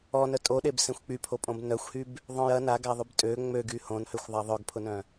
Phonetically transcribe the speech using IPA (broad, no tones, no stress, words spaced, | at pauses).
ɔnœ tʼoɗebsẽxʷ k͡pypʰopʼõb nœxʷhyb | ðˤœ̃j ɐ naɡaðˤyb tʼø ŋ͡møɡy hõnhøxʷðˤa ðˤœɡpʰʊnœ̃